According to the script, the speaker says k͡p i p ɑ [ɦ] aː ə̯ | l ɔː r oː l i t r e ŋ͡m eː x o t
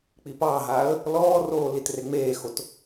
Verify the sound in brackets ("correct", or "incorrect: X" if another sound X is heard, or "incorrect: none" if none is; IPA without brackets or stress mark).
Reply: correct